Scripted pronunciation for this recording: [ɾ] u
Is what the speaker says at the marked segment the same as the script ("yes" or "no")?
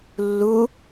no